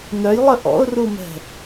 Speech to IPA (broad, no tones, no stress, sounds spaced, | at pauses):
n œ j lˠ ə ʔ ɔ̰ ʊ̯ r u m ɛ̤